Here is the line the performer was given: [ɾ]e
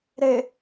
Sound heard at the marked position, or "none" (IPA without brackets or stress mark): ɾ